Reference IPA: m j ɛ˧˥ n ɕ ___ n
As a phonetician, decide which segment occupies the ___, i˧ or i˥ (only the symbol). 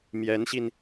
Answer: i˧